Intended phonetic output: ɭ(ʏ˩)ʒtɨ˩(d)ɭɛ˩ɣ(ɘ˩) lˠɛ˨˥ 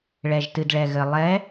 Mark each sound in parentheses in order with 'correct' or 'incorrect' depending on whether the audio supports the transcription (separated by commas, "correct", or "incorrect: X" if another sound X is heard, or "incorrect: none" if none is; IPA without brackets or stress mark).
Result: incorrect: ɛ˩, correct, correct